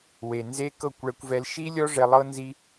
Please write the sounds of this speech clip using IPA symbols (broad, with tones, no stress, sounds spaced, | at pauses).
w e˨ n z e˦ k ɤ˦˨ kʷ ɭ ɛ˧ kʷ v ɛ˧ l ʃ i˦ lʲ ɔ˦ ʐ ɛ˧ lˠ ɤ˦ n z i˦